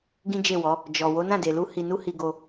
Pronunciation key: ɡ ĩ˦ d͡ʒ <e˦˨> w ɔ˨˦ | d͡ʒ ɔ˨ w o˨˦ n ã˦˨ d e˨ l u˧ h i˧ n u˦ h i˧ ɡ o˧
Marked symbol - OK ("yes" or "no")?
yes